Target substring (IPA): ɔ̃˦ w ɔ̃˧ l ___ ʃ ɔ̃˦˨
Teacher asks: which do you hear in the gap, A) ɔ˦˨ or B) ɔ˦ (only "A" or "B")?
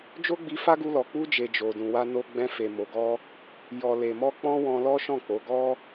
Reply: B